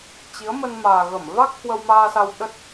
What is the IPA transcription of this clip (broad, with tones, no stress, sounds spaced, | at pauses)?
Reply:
t͡ɕ i˨˦ ə̯ m ə˧ n m aː˨˩ ɣ ə˧˩ m v a˦˥ k̚ h w ə˧ w m aː˧ s a˧ w ɗ ə˦˥ t̚